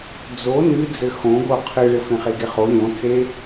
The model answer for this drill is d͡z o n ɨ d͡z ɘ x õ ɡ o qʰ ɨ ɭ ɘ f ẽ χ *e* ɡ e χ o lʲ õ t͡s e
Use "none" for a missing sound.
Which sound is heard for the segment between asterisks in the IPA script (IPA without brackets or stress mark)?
e